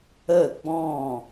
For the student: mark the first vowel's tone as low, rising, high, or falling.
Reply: falling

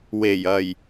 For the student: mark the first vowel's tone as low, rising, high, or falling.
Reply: low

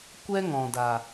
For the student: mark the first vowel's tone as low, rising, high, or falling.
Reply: high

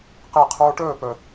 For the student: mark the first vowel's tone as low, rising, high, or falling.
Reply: falling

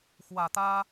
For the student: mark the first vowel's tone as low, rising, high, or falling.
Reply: low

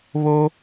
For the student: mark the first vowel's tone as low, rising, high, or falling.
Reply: high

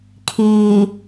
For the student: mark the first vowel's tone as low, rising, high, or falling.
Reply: low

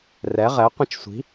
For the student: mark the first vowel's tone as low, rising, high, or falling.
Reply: rising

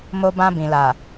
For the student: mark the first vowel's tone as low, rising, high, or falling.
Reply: high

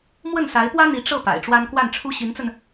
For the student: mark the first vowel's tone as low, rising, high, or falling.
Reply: falling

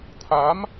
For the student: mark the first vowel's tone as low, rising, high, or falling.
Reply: rising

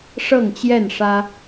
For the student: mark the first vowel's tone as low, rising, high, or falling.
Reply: falling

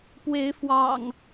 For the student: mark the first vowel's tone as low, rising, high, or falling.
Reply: rising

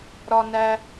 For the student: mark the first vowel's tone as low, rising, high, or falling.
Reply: high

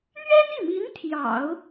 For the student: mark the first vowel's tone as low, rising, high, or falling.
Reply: high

